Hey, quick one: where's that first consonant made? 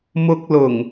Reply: lips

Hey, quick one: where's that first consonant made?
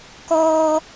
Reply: velum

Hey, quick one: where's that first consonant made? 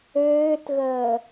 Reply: tongue tip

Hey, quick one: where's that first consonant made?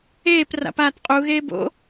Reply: lips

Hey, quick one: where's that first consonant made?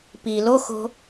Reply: lips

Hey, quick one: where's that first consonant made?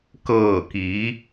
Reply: velum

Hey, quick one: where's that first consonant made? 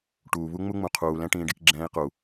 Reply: retroflex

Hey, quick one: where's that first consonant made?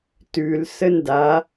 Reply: tongue tip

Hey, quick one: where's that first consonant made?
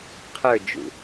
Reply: uvula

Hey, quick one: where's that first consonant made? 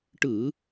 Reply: retroflex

